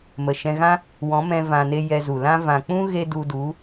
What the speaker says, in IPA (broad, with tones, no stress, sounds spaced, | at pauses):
m ə˨ ʃ ɛ̃˧ ɣ ã˦ | w ɔ̃˨˦ m ɛ̃˧ v ã˨ n e˧ j ɛ˧ z u˨ l ã˦ v ã˨ k͡p ũ˦ ɣ e˧ d u˧ d u˨˦